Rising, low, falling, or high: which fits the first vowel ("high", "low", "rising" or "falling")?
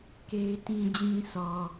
high